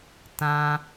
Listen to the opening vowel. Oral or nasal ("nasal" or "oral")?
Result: nasal